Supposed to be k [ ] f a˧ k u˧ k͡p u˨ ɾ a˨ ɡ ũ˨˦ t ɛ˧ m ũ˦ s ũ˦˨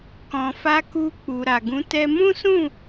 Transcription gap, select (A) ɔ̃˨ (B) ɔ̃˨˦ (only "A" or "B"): A